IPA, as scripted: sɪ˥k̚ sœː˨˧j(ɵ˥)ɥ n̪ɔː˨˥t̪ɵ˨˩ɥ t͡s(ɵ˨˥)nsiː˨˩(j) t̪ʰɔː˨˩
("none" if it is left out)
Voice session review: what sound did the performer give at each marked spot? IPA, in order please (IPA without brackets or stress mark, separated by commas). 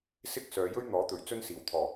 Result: ɵ˥, ɵ˥, w